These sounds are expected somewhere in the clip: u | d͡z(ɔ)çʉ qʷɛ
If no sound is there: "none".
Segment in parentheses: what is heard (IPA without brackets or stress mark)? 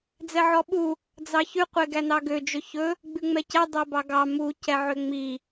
ɑ